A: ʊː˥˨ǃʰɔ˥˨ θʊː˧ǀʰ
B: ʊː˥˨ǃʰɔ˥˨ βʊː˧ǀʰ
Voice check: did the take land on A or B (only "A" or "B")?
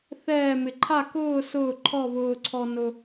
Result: B